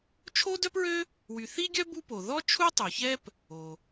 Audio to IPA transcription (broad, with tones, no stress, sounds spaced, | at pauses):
t͡ʃʰ o˥ d œ˥ p ɹ ø˥ | w y˩ θ i˥ ɡʲ œ˥ b u˥ p o˩ ð ɔ˥ t͡ʃʰ u˥ tˤ u˩ ç ɛ˥ p | o˩